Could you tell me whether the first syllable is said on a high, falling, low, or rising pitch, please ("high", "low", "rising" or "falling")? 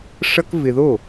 high